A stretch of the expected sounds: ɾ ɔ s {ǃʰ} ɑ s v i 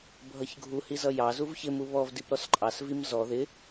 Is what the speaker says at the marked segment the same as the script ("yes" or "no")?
no